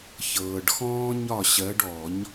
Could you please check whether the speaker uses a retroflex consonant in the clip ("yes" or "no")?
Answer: yes